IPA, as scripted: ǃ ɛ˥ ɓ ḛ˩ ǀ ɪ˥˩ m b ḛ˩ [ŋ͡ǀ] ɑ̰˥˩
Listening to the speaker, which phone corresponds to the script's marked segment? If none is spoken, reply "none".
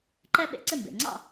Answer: ŋ͡ǀ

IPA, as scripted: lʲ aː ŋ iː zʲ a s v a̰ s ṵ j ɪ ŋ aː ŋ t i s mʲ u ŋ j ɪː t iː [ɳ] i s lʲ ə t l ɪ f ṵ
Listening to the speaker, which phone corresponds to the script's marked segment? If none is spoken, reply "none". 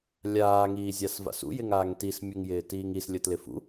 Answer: ŋ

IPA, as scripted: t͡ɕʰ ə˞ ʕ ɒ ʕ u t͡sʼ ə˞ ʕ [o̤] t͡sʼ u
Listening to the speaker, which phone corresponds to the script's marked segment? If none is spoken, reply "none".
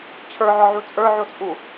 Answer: o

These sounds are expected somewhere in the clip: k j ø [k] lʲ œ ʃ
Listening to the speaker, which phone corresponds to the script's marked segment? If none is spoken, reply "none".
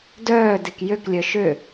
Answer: k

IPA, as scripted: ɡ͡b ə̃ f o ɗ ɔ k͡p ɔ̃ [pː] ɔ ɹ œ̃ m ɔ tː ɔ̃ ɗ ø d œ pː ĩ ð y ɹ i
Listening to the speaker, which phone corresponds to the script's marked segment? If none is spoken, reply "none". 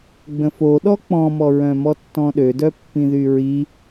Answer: m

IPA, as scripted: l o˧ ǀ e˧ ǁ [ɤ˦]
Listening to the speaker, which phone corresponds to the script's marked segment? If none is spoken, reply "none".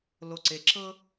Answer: ɤ˦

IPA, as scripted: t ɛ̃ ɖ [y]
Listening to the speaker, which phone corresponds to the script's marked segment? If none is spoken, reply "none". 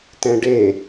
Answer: e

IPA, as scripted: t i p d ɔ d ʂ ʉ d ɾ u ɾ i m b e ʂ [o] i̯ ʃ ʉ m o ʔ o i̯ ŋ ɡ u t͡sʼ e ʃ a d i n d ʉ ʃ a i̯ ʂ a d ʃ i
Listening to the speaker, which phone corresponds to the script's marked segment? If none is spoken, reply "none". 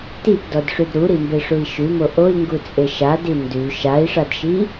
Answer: u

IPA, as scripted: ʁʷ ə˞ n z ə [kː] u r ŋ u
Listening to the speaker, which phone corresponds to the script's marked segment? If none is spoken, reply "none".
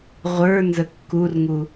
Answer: kː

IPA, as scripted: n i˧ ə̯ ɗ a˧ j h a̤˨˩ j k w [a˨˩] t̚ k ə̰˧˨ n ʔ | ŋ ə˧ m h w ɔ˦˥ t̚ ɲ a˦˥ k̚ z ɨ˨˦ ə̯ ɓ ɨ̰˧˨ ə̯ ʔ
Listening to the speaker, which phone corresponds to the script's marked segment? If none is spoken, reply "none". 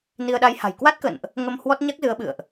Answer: a˦˥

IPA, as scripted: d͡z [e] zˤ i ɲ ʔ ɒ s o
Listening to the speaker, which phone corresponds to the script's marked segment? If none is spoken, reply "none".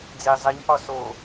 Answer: e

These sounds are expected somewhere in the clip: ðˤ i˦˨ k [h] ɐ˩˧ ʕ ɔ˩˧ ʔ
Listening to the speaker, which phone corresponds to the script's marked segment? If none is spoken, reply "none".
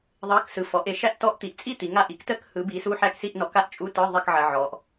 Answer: ʕ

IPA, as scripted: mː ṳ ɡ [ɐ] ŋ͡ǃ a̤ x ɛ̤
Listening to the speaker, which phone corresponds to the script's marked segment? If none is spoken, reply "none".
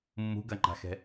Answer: ɐ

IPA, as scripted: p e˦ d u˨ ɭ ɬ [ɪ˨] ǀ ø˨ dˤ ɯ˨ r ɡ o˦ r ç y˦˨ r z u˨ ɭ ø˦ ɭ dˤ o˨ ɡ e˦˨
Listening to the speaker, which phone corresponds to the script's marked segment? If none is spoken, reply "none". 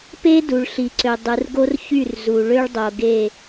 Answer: i˨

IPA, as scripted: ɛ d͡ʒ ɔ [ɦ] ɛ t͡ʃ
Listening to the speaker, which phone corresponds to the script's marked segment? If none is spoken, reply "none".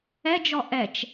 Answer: ʔ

